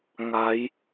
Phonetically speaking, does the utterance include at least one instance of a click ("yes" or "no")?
no